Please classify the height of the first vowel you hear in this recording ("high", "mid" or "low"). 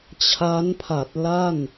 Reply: low